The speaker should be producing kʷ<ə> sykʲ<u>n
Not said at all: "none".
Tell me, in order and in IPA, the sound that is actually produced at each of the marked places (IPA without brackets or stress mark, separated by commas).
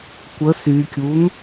ə, u